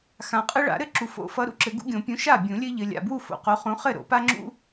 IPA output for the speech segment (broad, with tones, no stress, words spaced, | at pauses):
xã˨qʼɨ˦ ɭa̰˨˩˦ɾɘ˥˩ǁu˨ fo̰˨˩˦fʌ˨˦ɾṵ˨ ǁɘ˨˩˦ɡṵ˦ɡʲõ˨˩˦ pʲũ˨˦ʃa˥˩bʲũ˨˩˦ lʲɘ˦ʎɘ˨lʲa̰˨bwu˥˩ fo̰˨˩˦qo˨˦χũ˨˦ χɘ˥˩ ɾo̰˨˩˦pa˦ŋ͡ǁṵ˦